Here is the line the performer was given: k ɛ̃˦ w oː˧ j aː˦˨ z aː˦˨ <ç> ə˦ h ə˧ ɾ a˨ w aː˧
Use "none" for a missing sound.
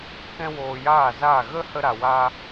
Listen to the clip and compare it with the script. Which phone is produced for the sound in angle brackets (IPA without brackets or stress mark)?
ɣ